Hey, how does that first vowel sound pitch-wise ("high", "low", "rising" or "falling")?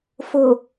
low